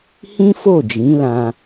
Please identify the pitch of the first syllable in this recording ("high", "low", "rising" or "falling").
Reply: high